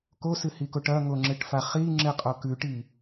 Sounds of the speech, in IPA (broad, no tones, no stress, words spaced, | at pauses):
kosɨhikoʈ ɐŋoŋ͡ǁɨʈfa χiŋ͡ǁɨqʼo kʉʈi